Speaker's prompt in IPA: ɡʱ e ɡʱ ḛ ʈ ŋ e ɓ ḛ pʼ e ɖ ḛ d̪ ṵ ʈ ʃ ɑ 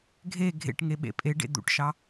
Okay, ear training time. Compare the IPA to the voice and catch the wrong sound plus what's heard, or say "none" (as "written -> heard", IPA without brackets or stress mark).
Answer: none